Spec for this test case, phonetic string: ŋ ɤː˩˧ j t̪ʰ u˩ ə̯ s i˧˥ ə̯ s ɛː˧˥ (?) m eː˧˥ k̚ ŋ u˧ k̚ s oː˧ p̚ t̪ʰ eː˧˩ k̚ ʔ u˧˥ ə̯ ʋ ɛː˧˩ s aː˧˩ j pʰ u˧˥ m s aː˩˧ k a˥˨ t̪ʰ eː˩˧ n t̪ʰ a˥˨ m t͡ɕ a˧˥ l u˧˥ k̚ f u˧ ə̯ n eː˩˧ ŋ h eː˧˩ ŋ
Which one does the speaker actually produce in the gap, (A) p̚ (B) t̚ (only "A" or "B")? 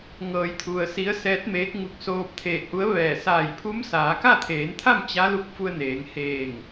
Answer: B